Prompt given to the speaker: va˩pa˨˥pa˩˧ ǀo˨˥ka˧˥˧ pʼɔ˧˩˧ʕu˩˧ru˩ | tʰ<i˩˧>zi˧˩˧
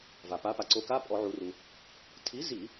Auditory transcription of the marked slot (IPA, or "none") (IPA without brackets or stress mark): i˨˥